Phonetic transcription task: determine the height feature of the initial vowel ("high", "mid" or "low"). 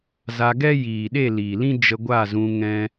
low